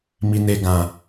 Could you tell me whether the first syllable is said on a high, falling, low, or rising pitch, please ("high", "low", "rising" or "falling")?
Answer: low